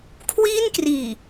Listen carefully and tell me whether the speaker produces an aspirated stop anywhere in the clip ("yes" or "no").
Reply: yes